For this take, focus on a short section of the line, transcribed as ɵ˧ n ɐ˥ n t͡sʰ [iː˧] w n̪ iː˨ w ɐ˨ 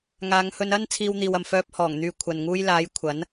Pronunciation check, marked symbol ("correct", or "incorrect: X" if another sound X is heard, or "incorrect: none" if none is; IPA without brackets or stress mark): correct